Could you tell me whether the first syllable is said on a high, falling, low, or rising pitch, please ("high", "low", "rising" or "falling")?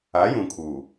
rising